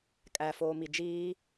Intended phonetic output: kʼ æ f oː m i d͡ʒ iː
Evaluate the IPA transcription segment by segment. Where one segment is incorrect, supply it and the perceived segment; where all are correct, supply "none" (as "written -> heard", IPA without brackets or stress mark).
none